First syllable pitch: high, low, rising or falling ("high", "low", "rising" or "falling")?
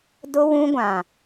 high